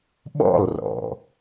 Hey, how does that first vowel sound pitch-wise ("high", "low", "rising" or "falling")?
falling